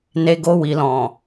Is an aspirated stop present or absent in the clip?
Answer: absent